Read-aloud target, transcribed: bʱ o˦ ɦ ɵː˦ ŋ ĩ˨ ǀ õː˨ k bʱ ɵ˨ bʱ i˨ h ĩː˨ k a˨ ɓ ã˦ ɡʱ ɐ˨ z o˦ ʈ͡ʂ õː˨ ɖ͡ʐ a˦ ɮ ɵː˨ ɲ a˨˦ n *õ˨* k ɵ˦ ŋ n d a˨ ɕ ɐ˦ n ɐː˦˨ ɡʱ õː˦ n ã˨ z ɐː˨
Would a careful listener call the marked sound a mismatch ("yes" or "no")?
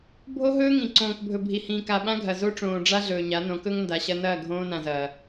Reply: yes